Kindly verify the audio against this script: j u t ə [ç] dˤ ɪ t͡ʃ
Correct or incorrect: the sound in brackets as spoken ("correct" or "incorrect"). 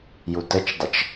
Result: incorrect